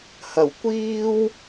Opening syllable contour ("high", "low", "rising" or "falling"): low